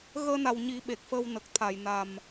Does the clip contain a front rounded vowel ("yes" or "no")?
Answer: no